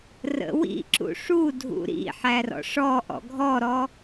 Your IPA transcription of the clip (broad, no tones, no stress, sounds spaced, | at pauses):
r ə̰ w ḭ ǁ ṵ ʂ u dʱ ṵ ɾ ḭ ħ æ r ɔ̰ ʂ ɔ ʔ ɔ̰ ɡʱ ɔ ɾ ɔ